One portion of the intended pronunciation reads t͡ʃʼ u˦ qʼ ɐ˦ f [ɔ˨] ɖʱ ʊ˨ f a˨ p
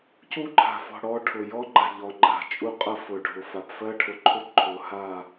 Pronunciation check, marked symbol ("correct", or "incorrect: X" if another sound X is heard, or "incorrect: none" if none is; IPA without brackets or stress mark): incorrect: ʊ˨